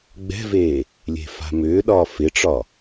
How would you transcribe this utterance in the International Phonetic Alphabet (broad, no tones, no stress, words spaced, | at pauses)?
ɡ͡bɛ̤veː | lʲe̤fa̤mʏːɗɒː fɪʈ͡ʂɒ